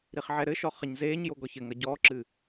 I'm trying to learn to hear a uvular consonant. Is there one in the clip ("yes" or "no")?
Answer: yes